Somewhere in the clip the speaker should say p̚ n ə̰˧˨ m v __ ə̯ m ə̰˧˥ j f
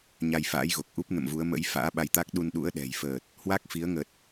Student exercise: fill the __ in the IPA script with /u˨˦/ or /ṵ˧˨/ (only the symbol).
u˨˦